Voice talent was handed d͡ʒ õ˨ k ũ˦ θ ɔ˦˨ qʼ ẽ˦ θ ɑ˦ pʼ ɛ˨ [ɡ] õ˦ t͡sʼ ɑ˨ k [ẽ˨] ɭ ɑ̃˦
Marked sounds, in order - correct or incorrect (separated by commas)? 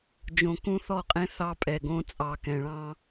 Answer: correct, incorrect